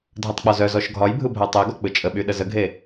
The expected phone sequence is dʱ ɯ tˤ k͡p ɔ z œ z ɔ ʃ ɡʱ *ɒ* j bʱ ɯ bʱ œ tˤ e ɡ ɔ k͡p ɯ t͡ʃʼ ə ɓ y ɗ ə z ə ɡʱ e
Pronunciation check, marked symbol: correct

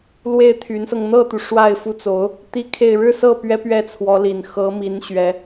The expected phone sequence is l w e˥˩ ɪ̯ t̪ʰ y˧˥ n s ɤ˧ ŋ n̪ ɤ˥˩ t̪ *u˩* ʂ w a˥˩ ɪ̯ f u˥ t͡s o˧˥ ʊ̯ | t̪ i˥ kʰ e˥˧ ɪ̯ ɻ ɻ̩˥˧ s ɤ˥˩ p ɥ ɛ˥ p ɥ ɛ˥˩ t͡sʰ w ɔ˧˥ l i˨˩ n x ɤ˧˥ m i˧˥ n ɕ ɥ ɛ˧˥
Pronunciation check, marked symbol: correct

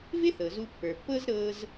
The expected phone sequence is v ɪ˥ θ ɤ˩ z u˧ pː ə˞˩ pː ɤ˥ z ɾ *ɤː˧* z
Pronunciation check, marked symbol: incorrect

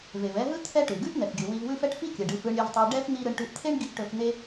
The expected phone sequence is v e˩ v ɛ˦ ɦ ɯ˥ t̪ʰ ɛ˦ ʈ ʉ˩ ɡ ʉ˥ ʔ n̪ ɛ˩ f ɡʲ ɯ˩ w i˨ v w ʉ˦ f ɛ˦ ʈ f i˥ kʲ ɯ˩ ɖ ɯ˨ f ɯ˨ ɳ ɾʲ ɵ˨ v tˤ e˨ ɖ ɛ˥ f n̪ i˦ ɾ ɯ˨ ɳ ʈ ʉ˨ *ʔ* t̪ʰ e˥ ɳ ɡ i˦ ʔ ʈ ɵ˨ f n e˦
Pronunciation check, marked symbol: correct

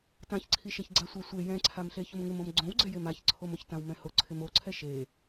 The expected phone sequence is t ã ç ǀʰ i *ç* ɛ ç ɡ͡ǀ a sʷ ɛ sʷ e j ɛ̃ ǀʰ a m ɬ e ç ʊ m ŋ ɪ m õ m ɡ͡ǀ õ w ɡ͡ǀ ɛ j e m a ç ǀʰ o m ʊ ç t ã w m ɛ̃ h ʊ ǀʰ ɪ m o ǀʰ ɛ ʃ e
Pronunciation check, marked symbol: incorrect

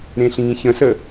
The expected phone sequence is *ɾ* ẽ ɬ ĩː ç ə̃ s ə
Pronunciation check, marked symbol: correct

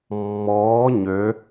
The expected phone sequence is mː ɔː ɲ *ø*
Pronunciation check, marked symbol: correct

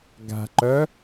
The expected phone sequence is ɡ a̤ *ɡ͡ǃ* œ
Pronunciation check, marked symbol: incorrect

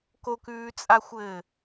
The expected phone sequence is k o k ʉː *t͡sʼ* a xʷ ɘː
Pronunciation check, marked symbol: correct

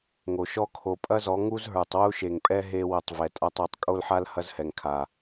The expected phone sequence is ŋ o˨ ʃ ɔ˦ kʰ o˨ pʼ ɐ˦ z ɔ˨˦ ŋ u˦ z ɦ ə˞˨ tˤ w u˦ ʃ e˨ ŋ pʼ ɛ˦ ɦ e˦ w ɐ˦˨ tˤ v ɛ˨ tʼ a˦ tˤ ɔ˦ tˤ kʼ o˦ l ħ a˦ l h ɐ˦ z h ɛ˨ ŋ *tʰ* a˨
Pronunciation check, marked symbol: incorrect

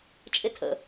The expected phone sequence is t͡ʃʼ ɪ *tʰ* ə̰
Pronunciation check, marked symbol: correct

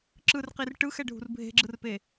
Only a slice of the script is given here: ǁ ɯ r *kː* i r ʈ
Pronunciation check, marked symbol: incorrect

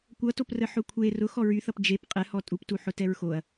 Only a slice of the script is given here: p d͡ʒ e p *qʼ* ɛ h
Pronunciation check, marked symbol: correct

